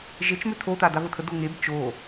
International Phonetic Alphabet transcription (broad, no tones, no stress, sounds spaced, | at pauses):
ʒ e t͡ʃ m ø tʰ o t a d a v ə tʰ ə d o ŋ e b t͡ʃ o